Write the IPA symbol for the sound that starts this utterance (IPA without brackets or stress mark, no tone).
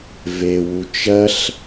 v